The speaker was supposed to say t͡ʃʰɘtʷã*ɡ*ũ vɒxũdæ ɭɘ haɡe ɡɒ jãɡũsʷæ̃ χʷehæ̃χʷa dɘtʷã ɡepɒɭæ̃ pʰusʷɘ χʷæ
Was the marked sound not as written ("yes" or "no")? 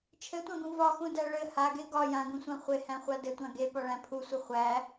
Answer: no